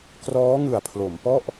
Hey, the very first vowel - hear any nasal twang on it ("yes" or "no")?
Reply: no